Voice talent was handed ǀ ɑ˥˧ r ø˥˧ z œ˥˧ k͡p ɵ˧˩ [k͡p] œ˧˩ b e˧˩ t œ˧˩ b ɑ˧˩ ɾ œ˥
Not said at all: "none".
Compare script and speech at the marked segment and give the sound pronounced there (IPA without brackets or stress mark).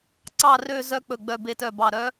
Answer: ɡ͡b